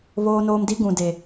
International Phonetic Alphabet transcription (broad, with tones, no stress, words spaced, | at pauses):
βoː˦noː˦m di˦ ɡũ˨de˨